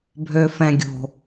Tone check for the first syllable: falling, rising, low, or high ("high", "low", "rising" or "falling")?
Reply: low